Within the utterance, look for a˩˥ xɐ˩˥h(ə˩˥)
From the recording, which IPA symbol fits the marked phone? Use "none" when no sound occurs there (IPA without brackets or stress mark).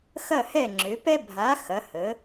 ə˩˥